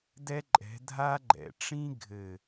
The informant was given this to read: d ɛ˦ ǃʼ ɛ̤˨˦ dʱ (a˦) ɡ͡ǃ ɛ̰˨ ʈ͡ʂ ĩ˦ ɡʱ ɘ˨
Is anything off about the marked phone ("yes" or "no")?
no